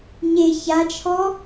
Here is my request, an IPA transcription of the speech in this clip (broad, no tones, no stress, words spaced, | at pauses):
ɲe çat͡ʃʰɔ